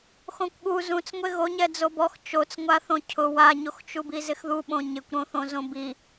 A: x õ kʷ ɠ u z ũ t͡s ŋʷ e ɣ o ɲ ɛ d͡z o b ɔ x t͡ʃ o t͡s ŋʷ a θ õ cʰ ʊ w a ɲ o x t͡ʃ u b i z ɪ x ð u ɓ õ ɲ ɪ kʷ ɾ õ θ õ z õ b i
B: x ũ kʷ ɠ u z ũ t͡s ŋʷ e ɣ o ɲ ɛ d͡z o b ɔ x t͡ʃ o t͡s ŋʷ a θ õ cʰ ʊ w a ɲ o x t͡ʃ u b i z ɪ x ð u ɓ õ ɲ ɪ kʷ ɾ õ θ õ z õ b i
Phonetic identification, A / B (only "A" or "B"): A